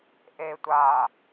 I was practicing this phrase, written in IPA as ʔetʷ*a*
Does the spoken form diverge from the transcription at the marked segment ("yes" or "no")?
yes